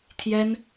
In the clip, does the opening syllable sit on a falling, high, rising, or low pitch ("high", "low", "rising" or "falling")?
high